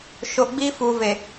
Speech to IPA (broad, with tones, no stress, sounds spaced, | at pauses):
ʃ o˨ ɡ͡b iː˦ f uː˨ v e˨